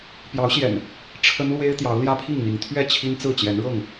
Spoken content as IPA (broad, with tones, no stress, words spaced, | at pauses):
pjɑ˨˦ʊ̯ɕjɛ̰˨˩n | ʈ͡ʂʰə˦nlwe˦ɪ̯ t̪jɑ˨˦ʊ̯ljä˦pʰi˥˨ŋn̪i˨˦ŋ t̪ʰɥɛ˥˨t͡ɕʰi˦nt͡sɹ̩˥˨ t͡ɕjɛ˨˦nɻɤ˥˨ŋ